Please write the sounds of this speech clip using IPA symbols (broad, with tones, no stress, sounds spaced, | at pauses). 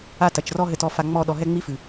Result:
a˦ t ɐ˨ t͡ʃ r ɔ˦ ɦ ɘ˨ t ɔ˨ f a˨ ŋ͡m ɔ˦˨ ɗ ɔ˨ ɦ ɛ˦ ŋ͡m i˦ f ɨ˨